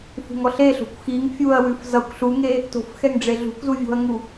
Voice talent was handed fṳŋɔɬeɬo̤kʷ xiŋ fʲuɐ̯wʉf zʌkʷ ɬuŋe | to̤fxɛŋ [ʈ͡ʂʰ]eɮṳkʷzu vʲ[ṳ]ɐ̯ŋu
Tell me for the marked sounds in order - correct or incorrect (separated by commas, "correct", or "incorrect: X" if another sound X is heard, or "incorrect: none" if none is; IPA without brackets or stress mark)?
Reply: incorrect: ɖ͡ʐ, incorrect: o̤